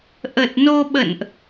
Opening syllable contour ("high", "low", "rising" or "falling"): low